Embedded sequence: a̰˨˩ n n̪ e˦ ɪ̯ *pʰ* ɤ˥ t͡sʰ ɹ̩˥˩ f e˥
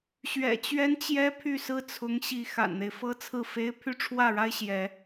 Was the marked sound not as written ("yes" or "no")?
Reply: yes